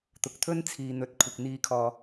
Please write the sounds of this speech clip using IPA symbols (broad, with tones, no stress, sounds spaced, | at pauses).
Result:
t̪ ʊ˨ k̚ t̪ʰ ɵ˥ n t͡sʰ iː˨ n̪ ɵ˨ t̚ kʷʰ ɪ˨ k̚ n̪ iː˧ kʰ ɔː˨